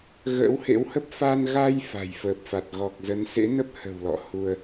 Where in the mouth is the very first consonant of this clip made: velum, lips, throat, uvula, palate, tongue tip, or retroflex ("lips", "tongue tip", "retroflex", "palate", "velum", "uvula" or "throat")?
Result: velum